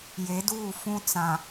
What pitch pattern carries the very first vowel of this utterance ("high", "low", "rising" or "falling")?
rising